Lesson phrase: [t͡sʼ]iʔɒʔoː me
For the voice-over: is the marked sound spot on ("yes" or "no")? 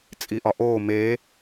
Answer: yes